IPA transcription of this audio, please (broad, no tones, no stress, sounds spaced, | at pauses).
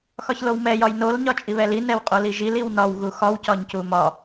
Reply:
x ɒ ç l o w m ɛ j ɒ j n o l ɲ ɒ t͡ʃʼ i β ɛ l i n ɛ w qʼ o l i ʒ i l i w n ɒ w ɣ u x ɒ w c ɒ ɲ c u m ɒ